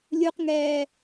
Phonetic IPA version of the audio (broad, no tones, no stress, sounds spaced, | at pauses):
lʲ u q ŋ ɛː